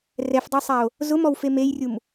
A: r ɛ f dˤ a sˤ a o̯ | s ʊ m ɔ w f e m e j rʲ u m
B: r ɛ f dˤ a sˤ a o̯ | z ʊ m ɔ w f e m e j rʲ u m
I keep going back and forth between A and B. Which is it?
B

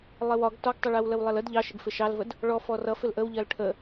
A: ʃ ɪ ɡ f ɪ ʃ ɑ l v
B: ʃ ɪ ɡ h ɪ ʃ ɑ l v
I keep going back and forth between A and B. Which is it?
A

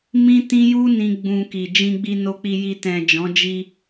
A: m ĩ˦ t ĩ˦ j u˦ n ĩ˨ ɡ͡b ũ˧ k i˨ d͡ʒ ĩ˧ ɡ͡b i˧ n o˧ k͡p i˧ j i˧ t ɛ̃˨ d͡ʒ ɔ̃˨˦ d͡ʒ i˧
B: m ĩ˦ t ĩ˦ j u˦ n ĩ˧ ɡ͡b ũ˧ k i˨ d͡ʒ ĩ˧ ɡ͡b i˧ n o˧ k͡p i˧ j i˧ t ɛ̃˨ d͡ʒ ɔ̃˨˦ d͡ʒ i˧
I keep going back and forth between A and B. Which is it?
B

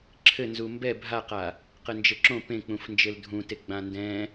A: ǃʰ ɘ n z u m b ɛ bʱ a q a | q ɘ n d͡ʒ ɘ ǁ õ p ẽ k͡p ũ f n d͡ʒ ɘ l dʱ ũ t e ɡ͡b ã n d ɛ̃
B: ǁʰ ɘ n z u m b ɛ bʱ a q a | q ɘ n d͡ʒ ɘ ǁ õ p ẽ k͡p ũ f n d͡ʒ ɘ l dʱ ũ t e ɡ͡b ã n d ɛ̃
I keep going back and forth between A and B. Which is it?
B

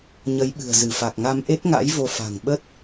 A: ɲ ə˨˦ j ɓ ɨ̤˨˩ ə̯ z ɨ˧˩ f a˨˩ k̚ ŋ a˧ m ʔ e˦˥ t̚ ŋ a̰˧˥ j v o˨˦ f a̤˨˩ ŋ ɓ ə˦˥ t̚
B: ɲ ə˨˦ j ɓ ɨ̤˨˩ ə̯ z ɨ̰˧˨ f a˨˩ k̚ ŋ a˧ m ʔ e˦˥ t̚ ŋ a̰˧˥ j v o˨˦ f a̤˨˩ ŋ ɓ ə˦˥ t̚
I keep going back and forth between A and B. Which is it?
A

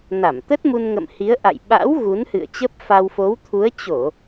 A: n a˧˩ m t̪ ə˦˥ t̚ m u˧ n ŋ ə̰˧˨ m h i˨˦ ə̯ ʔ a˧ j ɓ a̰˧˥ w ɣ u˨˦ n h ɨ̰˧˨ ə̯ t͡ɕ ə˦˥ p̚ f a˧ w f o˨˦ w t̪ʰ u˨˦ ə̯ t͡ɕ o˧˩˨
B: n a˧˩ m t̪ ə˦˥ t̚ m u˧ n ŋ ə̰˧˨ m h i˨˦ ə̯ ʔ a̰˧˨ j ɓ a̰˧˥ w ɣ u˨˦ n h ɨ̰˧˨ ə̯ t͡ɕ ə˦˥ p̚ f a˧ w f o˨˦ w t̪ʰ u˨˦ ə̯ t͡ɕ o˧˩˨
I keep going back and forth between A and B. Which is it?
B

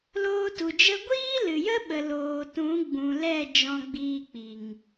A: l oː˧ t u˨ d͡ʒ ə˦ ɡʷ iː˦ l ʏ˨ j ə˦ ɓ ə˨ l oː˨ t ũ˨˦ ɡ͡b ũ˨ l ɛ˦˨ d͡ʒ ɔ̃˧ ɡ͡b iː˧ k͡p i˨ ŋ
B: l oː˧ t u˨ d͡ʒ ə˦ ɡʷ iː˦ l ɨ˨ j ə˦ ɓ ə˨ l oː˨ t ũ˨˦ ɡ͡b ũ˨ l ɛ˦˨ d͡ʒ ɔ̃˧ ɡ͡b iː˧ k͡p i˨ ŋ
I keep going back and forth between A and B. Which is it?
B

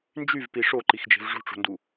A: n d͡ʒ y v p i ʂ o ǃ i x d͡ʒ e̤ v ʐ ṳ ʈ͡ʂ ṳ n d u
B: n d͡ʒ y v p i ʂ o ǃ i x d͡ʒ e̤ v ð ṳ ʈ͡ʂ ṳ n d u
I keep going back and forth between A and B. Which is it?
A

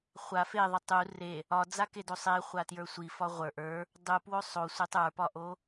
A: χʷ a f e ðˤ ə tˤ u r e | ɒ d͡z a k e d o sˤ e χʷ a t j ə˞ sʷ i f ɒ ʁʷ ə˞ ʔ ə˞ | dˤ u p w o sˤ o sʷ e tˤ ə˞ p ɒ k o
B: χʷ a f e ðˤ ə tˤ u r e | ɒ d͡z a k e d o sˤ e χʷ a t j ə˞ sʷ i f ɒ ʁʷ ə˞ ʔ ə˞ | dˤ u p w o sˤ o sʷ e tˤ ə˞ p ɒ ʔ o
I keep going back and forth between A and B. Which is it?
B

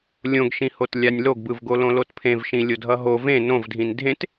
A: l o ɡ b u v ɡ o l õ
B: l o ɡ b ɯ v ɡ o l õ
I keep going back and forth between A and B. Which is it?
B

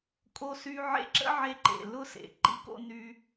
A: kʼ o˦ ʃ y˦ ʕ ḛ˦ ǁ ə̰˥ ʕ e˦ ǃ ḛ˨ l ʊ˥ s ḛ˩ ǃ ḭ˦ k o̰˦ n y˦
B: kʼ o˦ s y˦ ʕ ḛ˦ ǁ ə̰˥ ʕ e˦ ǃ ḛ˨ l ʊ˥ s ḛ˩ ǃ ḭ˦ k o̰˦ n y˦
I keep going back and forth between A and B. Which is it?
B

